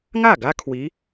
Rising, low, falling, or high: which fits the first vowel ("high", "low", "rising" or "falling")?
falling